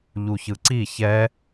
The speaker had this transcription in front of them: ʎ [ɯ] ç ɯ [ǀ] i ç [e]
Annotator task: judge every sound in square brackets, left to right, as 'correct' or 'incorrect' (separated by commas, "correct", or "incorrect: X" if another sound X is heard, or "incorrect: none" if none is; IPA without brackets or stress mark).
incorrect: u, correct, incorrect: ɛ